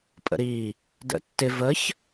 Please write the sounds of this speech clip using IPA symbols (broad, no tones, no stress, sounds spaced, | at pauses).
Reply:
pʼ ə̰ ɾ i | d ə̰ tː ɪ v ə ç